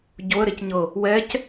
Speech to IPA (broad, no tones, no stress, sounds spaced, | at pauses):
ɟ o ə̯ ɾ e c ɲ ɤ | w ɛ c